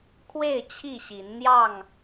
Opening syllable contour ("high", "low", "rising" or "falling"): falling